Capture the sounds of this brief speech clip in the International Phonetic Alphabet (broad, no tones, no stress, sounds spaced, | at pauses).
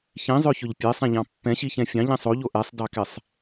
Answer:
ç ĩ zˤ ø ç ɵ ʎ pʲ e sˤ ɛ̃ ʎ ɑ̃ pː ɛ̃ ɕ i ç ɛ̃ fʲ ɑ̃ ʎ ĩ sˤ o ʎ o ʔ ɛ sˤ d ɑ k ɛ sˤ